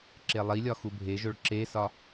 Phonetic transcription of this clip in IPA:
ǁ e lˠ i lʲ ɒ x u bʱ e ʒ o ɭ ǁ e s ɒ

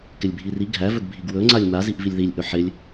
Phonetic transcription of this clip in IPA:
k ɪ lʲ bʱ i r i ɡʱ æ v ɵ ɡ bʱ i ɡ w ɵ ŋ͡ǀ a lʲ m a z i ʔ v i lʲ ð i lʲ ʔ ɵ ħ ɪ lʲ

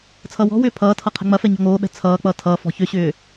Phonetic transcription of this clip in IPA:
t͡sʰ ʌː w ɔ̤ w ʏː pʰ ʌː tʰ ʌ qʰ ɛ̤ ŋ͡m ɐ f ɛ ɲ ɔ̤ ŋ oː ɓ ɛ̤ t͡sʰ ʌː k͡p ʌː tʰ ʌː f ɔ̤ ç ʏ ɕ ʏː

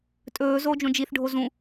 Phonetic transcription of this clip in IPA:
tʼ ɵː z oː d͡ʒ õ d͡ʒ i θ ɖʱ o z ũ

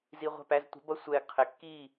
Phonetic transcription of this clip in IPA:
z i˧ ʁʷ æ̤˦˨ p æ˧ z tʷ ɛ̤˨˦ b ʌ˦ sʷ ɛː˧ ɡ qʰ ɪː˨ kː iː˦˨

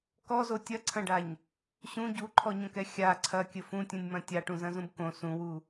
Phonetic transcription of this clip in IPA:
k ɔ z o tʲ ɐ ǀʰ ɐ̃ ɖ a ɲ | ɕ ũ ɟ u ǃʰ ɔ ɲ õ k ɛ xʲ a ǀʰ ɐ kʲ ɘ f ũ tʲ ũ nʲ m ɐ̃ tʲ a ʈ ũ z ɐ̃ z ũ b k õ s ũ w u

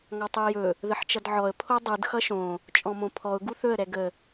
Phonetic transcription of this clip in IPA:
ŋ ɒ tˤ u ɪ̯ j ɵ | ð ə ħ t͡ʃ ʌ d ʕ ɔ ə̯ pʰ o dˤ ɯ d x ʌ ʃ õ | t͡ʃʼ ɔ̃ m õ pʰ ɔ ʊ̯ ɡ u θ ɵ ə̯ ɾ ɛ ɡ ə

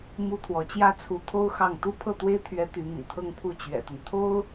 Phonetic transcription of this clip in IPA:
m u˥ t̪ʰ w ɔ˧˥ t͡ɕ j ä˥ t͡sʰ u˧˥ t̪ʰ o˥ ʊ̯ x ɑ˥˩ ŋ t̪ u˥ pʰ ɤ˥˩ t̪ w e˥ ɪ̯ t̪ʰ ɥ ɛ˧˥ t̪ y˧˥ m ḭ˨˩ t̪ʰ ɤ˥˧ ŋ pʰ u˥˩ t͡ɕ ɥ ɛ̰˨˩ t̪ ə˦ n t̪ʰ o˥ ʊ̯

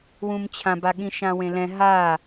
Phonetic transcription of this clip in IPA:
w ũ m t͡ɕʰ ã b a ɠ ĩ ʃ ã w ẽ l ɛ̃ ɦ a

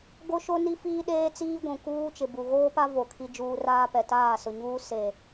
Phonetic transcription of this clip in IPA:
ɡ o˦ ʃ o˦ n i˦ f iː˦ ɗ eː˦ t͡s iː˦ ɡʷ ũ˨ k uː˦ t͡ʃ ɪ˨ b u˨ ɣ oː˦ p a˦ v o˨ kʰ i˦ d͡ʒ uː˦ r aː˦ p ɛ˨ t aː˦˨ s ʊ˨ ɲ uː˦ s e˨

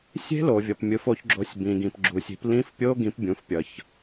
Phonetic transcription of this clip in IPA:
sʲ e̤˦˥ l o˨ vʲ ʌ˨ p mʲ ɯ˨˦ f o˨˦ ç ɡ͡ǁ o˨˦ sʲ b ĩ˨ ɡ ĩ˨ p ɡ͡ǁ u˨ sʲ i̤˨˦ p l ĩ˦˥ f pʲ o˦˥ ɡ ĩ˨˦ p bʲ ũ˨˦ f pʲ ʌ˨ ç

